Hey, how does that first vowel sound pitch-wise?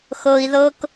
low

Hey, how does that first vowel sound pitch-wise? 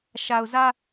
low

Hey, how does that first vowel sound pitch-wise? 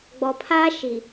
low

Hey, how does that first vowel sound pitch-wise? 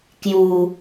low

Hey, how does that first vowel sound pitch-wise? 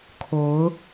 rising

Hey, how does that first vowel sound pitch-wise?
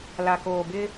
low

